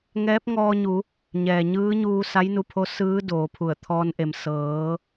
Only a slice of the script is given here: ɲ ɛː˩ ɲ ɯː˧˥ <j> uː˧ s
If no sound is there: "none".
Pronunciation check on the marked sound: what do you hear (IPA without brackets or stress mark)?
ɲ